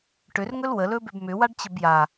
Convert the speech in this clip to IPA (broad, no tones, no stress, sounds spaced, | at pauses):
ʈ ʏ r ŋ ɵ l w ə l ɵ b ʏ b m ʏ w a ɖ t͡ɕ ə b j a